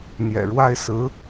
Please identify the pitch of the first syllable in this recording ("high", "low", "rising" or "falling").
low